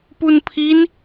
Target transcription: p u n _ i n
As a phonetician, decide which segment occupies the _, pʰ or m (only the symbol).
pʰ